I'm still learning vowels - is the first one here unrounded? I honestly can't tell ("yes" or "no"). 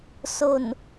no